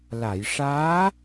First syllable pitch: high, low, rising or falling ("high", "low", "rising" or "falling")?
low